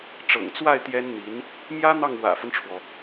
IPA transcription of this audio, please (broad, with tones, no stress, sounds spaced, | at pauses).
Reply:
ʈ͡ʂ ɤ̰˨˩ ŋ t͡s w a˥˩ ɪ̯ t̪ j ɛ˥ n n̪ i˧˥ n | m j ä˥ n̪ ɑ˥˩ ŋ w ä̰˨˩ f ə˦ n ʈ͡ʂʰ w ɔ˩